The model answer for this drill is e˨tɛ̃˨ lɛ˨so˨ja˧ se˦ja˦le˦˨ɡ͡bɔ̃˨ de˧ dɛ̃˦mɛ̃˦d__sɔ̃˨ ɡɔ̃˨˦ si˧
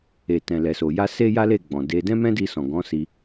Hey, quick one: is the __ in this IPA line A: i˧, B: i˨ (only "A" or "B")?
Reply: A